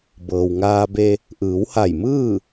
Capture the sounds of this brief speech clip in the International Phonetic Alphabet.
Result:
bɤː˩wŋaː˧be˧ | ʔɯː˩˧wha˧˩jmɯː˥˨

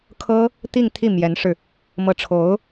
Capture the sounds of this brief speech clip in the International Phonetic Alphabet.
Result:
kʰɤ˥ | t̪i˥˧ŋt̪ʰi˥˩mjɛ˧˥nʂɻ̩˧ | mɤ˧˥ʈ͡ʂʰo˧˥ʊ̯

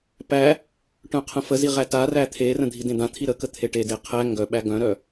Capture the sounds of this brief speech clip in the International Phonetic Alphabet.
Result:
pæ | ʈœ̃qʰə̃fəzi ʁætaræ t̪ʰerə̃ dʱidẽd̪ãt̪ʰi ɾəkə t̪ʰeʈede qʰæ ŋɡœ ɓæɡœ̃ɾœ

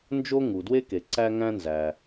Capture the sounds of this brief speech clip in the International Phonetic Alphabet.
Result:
nd͡ʒo˥ ŋu˩ dwe˥ke˩ ǀæ˥ŋæ̃˥nzæ˩

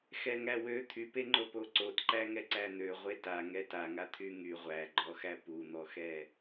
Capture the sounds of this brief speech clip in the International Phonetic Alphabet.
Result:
xɛŋæwø t̪ʰypeŋ͡ǃo poǀotǃæŋɛ ǀæn̪ø ʁʷeta ŋɛtaŋa t̪ʰyŋy ʁʷæɡ͡ǃɔxæ pun̪ɔxɛ

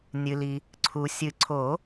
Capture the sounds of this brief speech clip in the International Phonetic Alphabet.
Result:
nʲɨ˩li˩ | ǀʰu˩ sʲɨ˨˩˦ ǀʰo˨˩˦

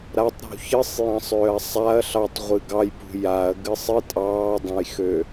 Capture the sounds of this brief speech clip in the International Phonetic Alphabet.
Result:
ɾatˤɾṳ çɨsˤ jɑ̃sˤøːɐ̯sˤaɐ̯ ɬɑtˤ ʁʷɨɡɑjpṳ jaɐ̯ ɡɨsˤɨ tʼɑːdˤɐ̃jxø

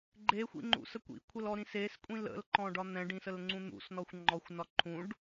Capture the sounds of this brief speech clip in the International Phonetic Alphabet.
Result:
ɡ͡ǃexʷḭŋ͡ǃṵsə kʷḭkʷʰəlɔ ɾĩseskʷʼĩl ə̰lǃɔ̃ɖɒ n̪ɛ̃ɖĩsəl ŋ͡ǀũn̪ṵsnɔxʷ ŋ͡ǃɔxʷnɒ ǃʰũɖ

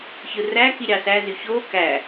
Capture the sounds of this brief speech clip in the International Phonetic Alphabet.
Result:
çɯræki ɾʲɑsæ zyço kæ

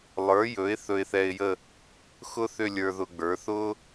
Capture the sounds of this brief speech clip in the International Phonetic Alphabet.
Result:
lˠə˞˩˥jɵ˩˥ɪ̯ θɵ˧ɪ̯θɛ˧ɪ̯jə˥˧ | xʊ˥θʏ˥˧ lʲə˞˧ðʊ˧ɡ͡bə˞˩˥ θʊ˥

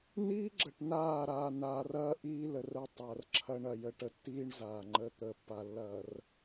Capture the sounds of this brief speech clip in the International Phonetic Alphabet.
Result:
niː˦ɡ͡ǁə˨ʈ naː˦˨ɾaː˨naː˨rɐː˦ ʔiː˦lə˨rə˦ tˤɐː˨rǁʰɐ˦ɳ ɐ˨jə˨ʈə˨tːiː˦ɳ zaː˨ŋ͡ǃə˦ t̪ə˨˦pːa˨lːɐː˨r

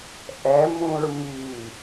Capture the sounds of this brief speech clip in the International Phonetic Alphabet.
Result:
ʔɛmũɹ mi

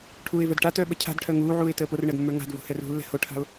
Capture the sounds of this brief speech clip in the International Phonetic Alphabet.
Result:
ʈʰuːɪ̯və˞dʈa tœːɓə cʰa̤dʈʰœ ŋuːʕuːɪ̯ təːporɳəːdmːə˞ ŋa̤d vṳhɛrṳlːɛ̤ hoʈʰa̤ʊ̯

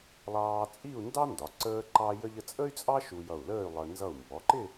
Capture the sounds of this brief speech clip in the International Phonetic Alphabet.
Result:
lˠɑː˧t͡sʼi˥˧u̯ ndɑ˥ndɒ˩˧ ǀəː˥ǃɑ˥jə˥ʎ ə˧t͡sʼə˥y̯t͡sʼɑ˥ ʃu˧jʌ˧˩u̯ləː˥˧y̯ lˠə˧ nzʌ˧˩u̯mbɔ˩˧ǃɪ˥˧

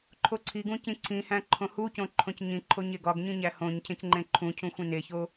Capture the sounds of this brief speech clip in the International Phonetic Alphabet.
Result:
ǃʰoǀʰiɡũ cĩǀʰĩhæ̃ ǃʰõhucõ ǃʰõcɲĩǃʰo ɲeɡɒɡɲĩ ɲæhõɲcʰẽc ŋ͡ǃẽǃʰũcʰũ xʷĩneço

